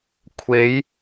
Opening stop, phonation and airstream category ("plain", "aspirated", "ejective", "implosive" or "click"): aspirated